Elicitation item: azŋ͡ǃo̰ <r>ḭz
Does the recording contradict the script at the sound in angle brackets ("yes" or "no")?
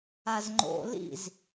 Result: yes